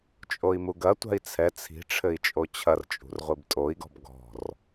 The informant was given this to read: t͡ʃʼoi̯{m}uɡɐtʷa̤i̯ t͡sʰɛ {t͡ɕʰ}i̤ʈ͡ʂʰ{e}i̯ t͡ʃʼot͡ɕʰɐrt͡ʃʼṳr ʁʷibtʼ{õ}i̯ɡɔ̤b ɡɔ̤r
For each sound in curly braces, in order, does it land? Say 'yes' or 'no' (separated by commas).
yes, no, no, no